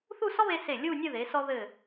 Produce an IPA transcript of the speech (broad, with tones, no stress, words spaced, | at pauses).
θu˥˧sɔ˥βe˧ se˧˩ lʲu˥˧nʲɘ˥˧ ðe˩˧sɔ˧ ðɘ˧˩